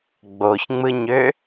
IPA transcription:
ɡ͡b o ç ŋ͡m ɯ ɲ ø

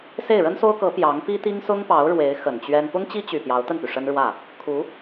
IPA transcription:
s e˥˩ ɪ̯ ɻ ə˥ n s o˥ ʊ̯ k ɤ˧˥ p j ɑ˧˥ ŋ p i˥ t̪ i˥ ŋ s ʊ˥ ŋ p ɑ˧˥ ʊ̯ ɻ w e˧˥ ɪ̯ x ə˨˩ n t͡ɕ ɥ ɛ˥ n p ʊ˥ ŋ t͡ɕ i˥ t͡ɕ y˨˩ p j ɑ˧˥ ʊ̯ t̪ ə˥˩ n p y˩ ʂ ə˥ n ɻ w ä˥˩ | kʰ u˧˥

